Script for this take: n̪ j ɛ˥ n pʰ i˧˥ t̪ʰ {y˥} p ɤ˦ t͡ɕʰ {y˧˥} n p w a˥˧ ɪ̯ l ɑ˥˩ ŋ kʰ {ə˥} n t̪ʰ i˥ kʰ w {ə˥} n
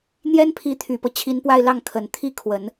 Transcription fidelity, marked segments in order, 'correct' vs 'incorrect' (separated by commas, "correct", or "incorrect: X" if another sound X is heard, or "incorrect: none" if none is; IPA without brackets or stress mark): incorrect: y˨˩, incorrect: i˧˥, incorrect: ə˨˩, incorrect: ə˨˩˦